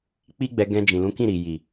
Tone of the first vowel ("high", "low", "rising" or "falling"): high